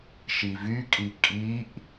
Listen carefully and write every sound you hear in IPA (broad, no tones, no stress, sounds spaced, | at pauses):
ʃ i v y kʼ i kʼ i ʔ